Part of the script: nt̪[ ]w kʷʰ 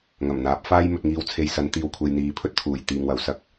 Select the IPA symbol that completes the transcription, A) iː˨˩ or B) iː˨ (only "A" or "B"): B